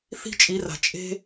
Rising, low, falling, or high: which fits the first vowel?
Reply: high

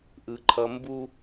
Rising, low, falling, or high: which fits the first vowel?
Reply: low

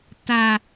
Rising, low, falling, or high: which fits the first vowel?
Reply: high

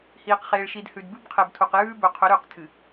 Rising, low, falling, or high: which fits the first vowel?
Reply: low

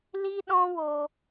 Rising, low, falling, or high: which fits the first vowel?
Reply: high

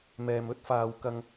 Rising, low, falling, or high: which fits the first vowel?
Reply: low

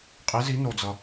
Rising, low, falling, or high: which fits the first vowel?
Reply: rising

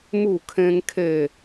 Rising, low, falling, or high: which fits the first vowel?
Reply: falling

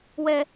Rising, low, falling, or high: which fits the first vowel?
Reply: high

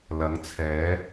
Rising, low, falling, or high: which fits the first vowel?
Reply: rising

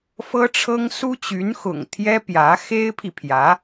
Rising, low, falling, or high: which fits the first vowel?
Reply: high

